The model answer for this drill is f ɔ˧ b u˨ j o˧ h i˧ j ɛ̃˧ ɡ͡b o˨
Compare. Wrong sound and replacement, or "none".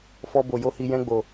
u˨ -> o˨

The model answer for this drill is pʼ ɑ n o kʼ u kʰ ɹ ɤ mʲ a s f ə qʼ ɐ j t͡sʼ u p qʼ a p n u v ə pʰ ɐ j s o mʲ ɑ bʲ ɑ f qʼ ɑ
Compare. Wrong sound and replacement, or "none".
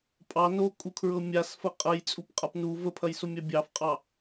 none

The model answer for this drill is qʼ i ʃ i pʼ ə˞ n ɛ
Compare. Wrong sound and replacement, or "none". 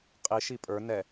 none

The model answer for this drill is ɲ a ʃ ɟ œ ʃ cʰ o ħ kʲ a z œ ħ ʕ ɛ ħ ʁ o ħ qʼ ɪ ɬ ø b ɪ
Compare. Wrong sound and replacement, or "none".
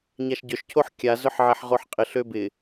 none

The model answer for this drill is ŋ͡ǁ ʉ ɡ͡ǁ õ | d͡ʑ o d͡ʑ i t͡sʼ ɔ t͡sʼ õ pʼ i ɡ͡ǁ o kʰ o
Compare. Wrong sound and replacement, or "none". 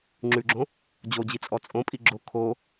none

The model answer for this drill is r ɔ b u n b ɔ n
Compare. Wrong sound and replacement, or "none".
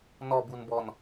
r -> n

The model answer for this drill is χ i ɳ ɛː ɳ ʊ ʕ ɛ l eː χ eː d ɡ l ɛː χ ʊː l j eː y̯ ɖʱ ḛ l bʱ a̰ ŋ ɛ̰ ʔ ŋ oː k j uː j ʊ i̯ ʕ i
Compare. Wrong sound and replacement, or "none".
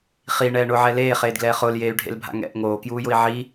none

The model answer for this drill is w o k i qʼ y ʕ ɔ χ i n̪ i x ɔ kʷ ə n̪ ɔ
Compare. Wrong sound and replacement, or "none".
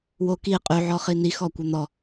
none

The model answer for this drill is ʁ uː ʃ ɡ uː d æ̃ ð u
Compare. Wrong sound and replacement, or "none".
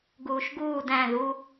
ʁ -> ɡ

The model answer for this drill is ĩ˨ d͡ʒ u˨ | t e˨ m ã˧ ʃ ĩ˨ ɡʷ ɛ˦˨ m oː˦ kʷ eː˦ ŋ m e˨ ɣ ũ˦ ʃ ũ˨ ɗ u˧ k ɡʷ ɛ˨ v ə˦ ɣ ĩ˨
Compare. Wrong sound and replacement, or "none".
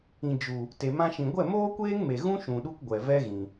ə˦ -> ɛ˦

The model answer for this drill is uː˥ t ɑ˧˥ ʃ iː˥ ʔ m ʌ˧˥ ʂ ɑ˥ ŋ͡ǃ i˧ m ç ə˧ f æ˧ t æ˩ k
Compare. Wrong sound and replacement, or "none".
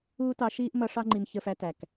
none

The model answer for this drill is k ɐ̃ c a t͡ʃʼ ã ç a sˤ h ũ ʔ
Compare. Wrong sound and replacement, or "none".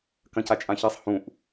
none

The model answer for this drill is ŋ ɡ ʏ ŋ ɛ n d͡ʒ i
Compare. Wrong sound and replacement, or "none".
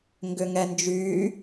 i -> y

